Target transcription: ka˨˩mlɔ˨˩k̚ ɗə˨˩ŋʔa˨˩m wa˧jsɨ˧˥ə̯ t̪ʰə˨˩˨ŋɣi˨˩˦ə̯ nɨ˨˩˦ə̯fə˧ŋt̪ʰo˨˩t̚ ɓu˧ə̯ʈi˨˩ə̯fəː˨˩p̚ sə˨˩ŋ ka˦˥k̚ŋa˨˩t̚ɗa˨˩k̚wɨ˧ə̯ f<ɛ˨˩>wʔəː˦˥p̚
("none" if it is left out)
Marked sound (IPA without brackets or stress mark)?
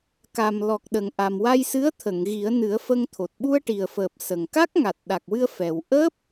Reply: ɛ˨˩